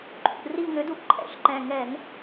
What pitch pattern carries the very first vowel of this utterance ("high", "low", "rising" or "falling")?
low